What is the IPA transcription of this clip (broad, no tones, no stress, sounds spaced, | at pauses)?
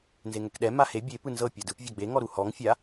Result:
n z e ŋ ɛ k ɗ ɛ m a h e bʲ e p ɯ n z ɤ pʲ a d ɯ p vʲ ɔ ɡ͡b e ŋ ɔ ɾ u h ɔ ŋ fʲ a